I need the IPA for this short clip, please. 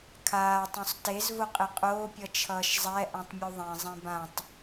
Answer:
kʰaː tˤũsˤtez voqʼeqʼoː pʲʌt͡ʃʰʌːʃzˤɛ ʔãtˤmʲuðˤẽ zˤẽbãtˤ

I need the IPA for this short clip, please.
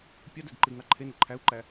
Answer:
pʲadæd ǃɯdnɑǃʰenʊ ǃʰæu̯ǃæ

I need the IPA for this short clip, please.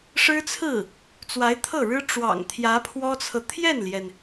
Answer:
ʂɻ̩˥t͡sʰɹ̩˥˩ | t͡swa˧˥ɪ̯t̪ʰɤ˥˩ɻɻ̩˥ ʈ͡ʂwɑ̰˨˩ŋt̪ʰjä˧˥pʰwɔ˥t͡sʰɤ˨ t̪ʰjɛ˥˩nljɛ˩n

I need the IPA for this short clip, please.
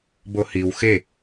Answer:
bohiw xe

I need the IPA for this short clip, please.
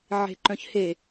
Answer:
ʕe̤ǃœ̃çhe

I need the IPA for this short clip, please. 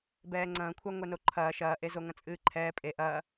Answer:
bɛːŋ͡ǀɐ̃ːkʷʰa ŋʷɛnoǃʰɐː ʃɐːʔezo ŋɐ̃t͡sʼɨːǃʰɛː pʼe ʔɐː

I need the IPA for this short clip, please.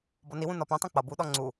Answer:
bɔniwũ nɔpĩtˤĩ k͡pʌ buɗɔ ŋ͡ǀu

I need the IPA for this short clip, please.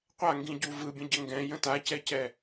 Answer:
qʷaŋɡĩɟu vɯbʲə̃ ɟəŋɡɛ̃ jə̃tacɛcɛ

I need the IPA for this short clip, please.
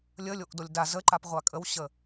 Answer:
lʲəlʲoʔdolʲ da zəǃapʁʷa kʼəwɕə

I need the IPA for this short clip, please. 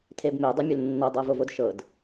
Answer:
tʰebmedˤɛmʲʊl nːɤdˤævovod ʃɤd

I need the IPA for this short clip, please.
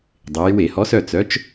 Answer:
dˤe˩˧jwe˧˩˧hɔ˨˥s œ˩˧˩t͡sœ˨˥t͡ʃ

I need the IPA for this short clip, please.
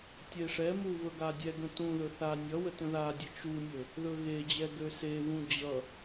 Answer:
tʲeʂɛmu vɵɡadʲɛɡə̃ tũðɵ θa nʲʌwə tə̃ðadʲə t͡ʃunʲø | ðɵɣed͡ʑɛ ɡøsevũ d͡ʑʌ

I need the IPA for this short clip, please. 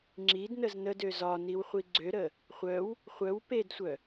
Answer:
ŋ͡ǁidnəz nədø zɒniw χʷiɡ͡ǀøɾə | χʷœw | χʷœw pedsʷœ

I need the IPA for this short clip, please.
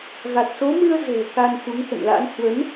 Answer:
ɣa˨˩t̚so˨˦mɨ˧ə̯zə̤ː˨˩ ka˧nfu˨˦ŋkə̰˧˨nla̰˧˥n hwə˨˦n

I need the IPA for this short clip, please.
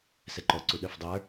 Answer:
sɛǃɔǀu ɗə˞fdˤə˞

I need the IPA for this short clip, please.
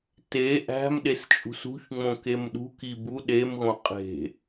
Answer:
te ʔæ̤mɗes t͡ʃʼṳsṳçŋ͡mõ kemɗṳkib u ɗemɣõ qʼe̤

